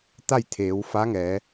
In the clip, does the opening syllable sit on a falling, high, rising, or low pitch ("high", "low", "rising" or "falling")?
falling